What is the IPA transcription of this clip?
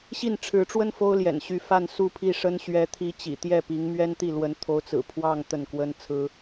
ɕ i˥˩ n ʈ͡ʂʰ ɻ̩˧˥ ʈ͡ʂ w ə˥ n f o˥ ʊ̯ l j ɛ̰˨˩ n ɕ y˧˥ f a˥˧ n s u˥˧ pʰ i˥˩ ʂ ə˥ n ɕ ɥ ɛ˧˥ t̪ʰ i˧˥ t͡ɕ ḭ˨˩ t̪ j ɛ˥˩ p i˧˥ ŋ m ɥ ɛ˥ n t̪ i˥˩ l w ə˧˥ n t̪ʰ o˧˥ ʊ̯ t͡s ɹ̩˨˩ pʰ w ɑ˥˧ ŋ t̪ ə˥˩ n k w ə˥ n t͡sʰ ɹ̩˥

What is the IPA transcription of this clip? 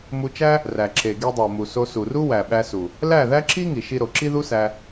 m u˧ t͡ʃ æ˦ | r æ˨ ǁ e˨ ɡ i˧ dˤ o˨ m u˨ s o˧ s u˨ r u˦ w æ˨ ɓ æ˧ s u˨ | l æ˦˨ ð æ˦ ǁ i˦ ŋ i˨ ʃ i˧ ɾ o˨ ǁ i˦ ð u˦ s æ˧

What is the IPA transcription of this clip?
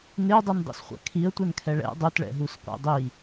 n ɪ ə̯ dˤ u n dˤ ɛ̰ s χʷ a̰ kʰ i ə̯ tʷ ɛ n kʰ ɛ ɭ ɛ̰ dˤ u t ɭ ɛ̰ ɦ u s qʷ ɛ̰ dˤ i

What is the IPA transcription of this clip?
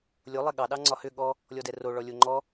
lʲ o lˠ ɛ ɠ ɑ ɗ ɑ ŋ͡ǀ ɒ h ʏ ɠ ɔ | lʲ ɔ d ɛ r o ɭ ɔ lʲ o ŋ͡ǃ ɔ

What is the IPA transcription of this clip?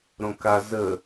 ɾ õ k a z ə

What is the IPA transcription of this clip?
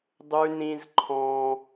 dˤ ʉ˦ n ĩ˦ z ǃʰ ɔ̃˦

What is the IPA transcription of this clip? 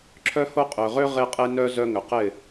ǁʰ œ˦ h o˦ qʼ ø˨ ʁ ø˦ ʁ e˦ qʼ e˦ n œ˦ z œ˦ ŋ ʏ˨ q ɪ˦˨

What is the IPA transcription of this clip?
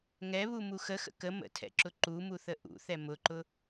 ŋ ɛ β u m u x ə x ə̰ k ə m ə̰ tʰ ɛ̰ ǁ ʊ ǃ u m u θ ə ʔ ṵ θ ɛ m ʊ ǃ ʊ

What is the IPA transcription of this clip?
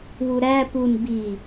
w u ɾ æ p u n b i

